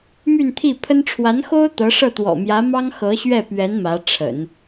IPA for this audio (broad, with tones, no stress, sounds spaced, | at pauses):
m y˥˧ n t̪ʰ i˥˩ pʰ ə˥ n ʈ͡ʂʰ w a˧˥ n x o˥ ʊ̯ t̪ ɤ˧˥ ʂ ɤ˥˩ t̪ w ɔ̰˨˩ m j ä˧˥ m ɑ˥ ŋ x ɤ˧˥ ɕ ɥ ɛ˥˩ p ɥ ɛ˧˥ n m ä˧˥ ʈ͡ʂʰ ə̰˨˩˦ n